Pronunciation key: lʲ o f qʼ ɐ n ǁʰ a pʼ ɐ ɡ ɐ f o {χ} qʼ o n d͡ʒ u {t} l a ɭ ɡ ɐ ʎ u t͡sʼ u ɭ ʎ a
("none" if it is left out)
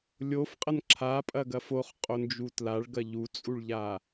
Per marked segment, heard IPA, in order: χ, t

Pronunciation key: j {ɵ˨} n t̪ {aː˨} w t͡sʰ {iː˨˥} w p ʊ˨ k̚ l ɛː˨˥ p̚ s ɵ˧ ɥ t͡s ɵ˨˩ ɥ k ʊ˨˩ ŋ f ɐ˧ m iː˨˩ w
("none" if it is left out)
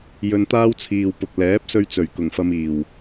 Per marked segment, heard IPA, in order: ɵ˧, aː˥, iː˨

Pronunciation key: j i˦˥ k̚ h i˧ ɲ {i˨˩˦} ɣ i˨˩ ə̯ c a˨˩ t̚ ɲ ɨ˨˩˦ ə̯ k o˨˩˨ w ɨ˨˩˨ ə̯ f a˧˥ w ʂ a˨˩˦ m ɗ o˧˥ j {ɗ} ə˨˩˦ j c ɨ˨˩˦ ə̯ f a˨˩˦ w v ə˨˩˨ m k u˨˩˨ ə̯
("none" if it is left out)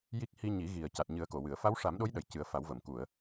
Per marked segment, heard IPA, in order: i˨˩˦, ɗ

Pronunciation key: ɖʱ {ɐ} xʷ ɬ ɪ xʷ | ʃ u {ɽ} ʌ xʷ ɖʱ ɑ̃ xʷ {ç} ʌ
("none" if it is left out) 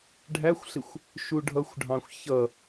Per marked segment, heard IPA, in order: æ, ɖʱ, ç

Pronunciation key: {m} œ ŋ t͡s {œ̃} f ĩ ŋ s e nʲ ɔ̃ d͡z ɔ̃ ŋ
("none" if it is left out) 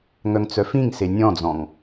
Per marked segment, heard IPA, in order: ŋ, œ

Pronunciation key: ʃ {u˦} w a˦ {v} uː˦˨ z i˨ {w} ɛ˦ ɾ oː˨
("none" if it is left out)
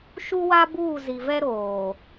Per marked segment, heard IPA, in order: u˦, b, v

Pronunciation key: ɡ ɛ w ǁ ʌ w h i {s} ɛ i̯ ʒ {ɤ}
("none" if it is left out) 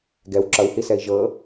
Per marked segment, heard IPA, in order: s, ɤ

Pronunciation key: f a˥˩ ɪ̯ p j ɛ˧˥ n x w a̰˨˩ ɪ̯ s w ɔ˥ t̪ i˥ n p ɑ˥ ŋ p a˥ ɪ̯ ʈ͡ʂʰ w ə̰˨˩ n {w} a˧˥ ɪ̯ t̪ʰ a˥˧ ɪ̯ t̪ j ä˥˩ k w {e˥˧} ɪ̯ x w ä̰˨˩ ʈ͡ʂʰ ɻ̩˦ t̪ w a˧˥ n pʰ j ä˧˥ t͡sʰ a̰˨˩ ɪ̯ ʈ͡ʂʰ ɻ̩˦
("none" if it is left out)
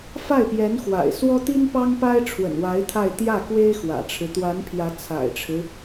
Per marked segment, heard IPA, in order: w, e˥

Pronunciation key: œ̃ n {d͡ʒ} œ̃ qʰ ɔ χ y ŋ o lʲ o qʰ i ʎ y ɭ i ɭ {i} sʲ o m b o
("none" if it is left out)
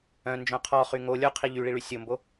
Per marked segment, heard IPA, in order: d͡ʒ, y

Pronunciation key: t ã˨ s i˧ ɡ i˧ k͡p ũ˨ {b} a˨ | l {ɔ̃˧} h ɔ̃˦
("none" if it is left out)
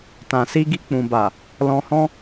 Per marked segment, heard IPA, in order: b, ɔ̃˧

